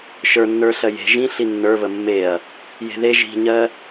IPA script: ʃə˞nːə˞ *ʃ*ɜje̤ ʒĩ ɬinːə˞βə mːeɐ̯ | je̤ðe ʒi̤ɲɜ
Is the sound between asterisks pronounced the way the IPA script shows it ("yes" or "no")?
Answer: no